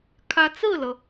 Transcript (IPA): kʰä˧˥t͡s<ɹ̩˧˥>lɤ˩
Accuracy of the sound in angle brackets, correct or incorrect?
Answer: incorrect: ɹ̩˥˩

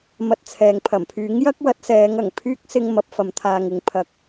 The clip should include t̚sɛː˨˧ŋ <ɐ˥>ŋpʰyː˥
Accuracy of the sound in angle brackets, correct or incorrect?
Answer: incorrect: ɐ˨˩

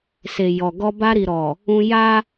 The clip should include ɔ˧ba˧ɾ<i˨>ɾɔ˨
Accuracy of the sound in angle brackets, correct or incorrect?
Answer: correct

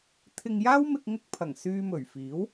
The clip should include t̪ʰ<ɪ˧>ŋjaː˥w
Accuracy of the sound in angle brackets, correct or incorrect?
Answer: correct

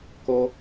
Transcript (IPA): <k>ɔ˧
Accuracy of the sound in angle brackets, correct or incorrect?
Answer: correct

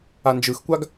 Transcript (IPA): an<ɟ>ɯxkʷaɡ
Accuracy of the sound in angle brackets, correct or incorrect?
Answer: incorrect: d͡ʒ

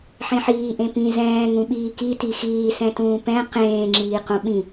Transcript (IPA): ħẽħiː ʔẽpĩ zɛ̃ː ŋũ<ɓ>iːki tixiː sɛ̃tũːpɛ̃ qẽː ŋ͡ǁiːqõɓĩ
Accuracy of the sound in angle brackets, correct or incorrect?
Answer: correct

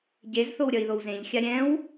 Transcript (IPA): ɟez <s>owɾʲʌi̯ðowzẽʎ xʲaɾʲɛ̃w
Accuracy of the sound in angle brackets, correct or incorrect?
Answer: incorrect: θ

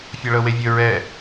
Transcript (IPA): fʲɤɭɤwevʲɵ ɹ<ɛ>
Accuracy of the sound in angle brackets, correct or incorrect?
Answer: correct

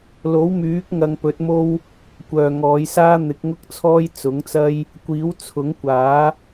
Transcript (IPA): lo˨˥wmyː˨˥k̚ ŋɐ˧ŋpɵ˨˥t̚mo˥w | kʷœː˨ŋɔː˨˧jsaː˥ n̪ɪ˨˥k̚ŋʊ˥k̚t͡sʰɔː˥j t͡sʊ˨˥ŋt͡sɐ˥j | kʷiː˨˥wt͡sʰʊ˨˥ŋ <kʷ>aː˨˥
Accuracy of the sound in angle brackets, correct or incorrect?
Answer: correct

